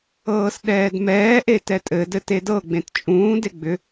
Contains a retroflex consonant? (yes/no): no